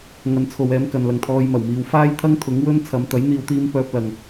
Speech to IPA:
ŋ ɐ˨˧ n t͡sʰ o˨ w ɛː˨˧ m k ɐ˨ n l ɐ˨ ŋ t̪ʰ ɔː˧ j m ɐ˨˩ w m iː˨ w f aː˥ j t̪ʰ ɐ˥ ŋ t̪ʰ ʊ˨˥ ŋ w ɵ˥ n t͡sʰ ɐ˨˧ m t̪ ɐ˨˥ j n̪ iː˨˧ w t̪ iː˧ m p œː˧ p̚ l ɐ˨ ŋ

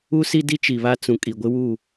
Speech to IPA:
u˦ s i˦ d i˦ t͡ʃ i˨ β a˦ t͡s ũ˨ kʼ i˨ ɡʷ ɪ˦ w u˦˨

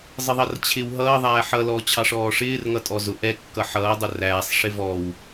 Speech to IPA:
zˤ ɪ ðˤ ʌ r t͡ɕʰ ɪ w ɦ ʌː ðˤ æː ħ ʌ l ɔː t͡ɕʰ ɑ ʂ ɔː ʂ ɪː r ŋ ʌ tʼ ɔ z ʊ ʔ ɛ kː ʌ ħ ʌː dˤ ʊ r æː sˤ ʂ ɪ v ɔ w

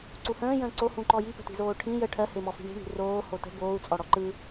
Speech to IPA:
ǀ u h ə̃ː j ə̃ː ǀ o h ũ ǃ ɔ j i p ə̤ t i̤ z oː ʈʰ ĩ j ə ʈʰ ɜ h e m ɔ f i̤ ɳ i̤ ɳ i̤ r oː h o t ə̤ b oː u̯ t͡sʼ ɔ ɽ ɔ ǃ ɯ

